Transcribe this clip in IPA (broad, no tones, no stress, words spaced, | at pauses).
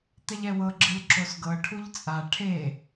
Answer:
t̪ɛʎɛwɤ ɡ͡ǁɯlǁosɡɤ ʈʰuʎt͡sʼa ʈʰe